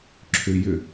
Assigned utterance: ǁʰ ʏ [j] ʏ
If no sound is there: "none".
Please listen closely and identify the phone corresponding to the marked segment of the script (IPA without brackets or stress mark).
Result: j